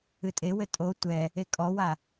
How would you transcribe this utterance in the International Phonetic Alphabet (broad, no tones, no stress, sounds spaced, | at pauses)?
ɨ tʼ e w ɘ tʼ o tʷ ɛ | e kʼ ɔ w a